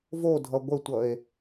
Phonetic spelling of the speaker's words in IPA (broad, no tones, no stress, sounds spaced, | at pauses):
v o dʱ ʌ ɡʷ ə tʷ ʌ e̯